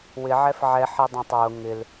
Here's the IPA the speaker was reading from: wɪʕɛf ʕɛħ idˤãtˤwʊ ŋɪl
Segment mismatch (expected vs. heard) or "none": none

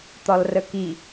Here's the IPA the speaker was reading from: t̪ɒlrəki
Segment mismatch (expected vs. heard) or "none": none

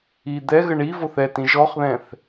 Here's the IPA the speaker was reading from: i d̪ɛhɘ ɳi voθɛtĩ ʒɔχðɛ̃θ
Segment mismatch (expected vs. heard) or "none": h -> ɣ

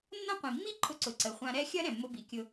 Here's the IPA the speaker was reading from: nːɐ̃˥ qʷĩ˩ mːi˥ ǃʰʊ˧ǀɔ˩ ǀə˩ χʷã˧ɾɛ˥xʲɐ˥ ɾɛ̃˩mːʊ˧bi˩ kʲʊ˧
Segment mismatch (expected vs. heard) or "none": ɔ˩ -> ʊ˩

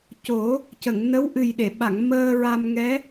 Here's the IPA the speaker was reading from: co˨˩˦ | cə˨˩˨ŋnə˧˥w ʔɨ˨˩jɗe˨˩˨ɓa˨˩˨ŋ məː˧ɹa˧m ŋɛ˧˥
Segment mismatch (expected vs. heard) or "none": none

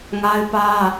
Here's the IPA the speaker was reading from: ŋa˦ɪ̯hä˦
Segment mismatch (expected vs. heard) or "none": h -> p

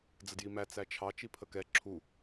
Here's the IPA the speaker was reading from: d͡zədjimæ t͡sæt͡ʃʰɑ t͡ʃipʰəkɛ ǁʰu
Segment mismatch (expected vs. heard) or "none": none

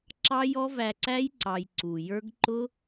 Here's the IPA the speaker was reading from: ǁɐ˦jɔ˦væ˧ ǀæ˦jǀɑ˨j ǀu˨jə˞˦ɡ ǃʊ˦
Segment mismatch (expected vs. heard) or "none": ɐ˦ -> ɑ˦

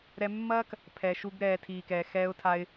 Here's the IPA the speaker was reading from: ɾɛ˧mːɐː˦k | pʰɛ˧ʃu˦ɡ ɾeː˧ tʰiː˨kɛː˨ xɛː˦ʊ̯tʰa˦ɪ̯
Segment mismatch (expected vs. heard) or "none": eː˧ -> ɛː˧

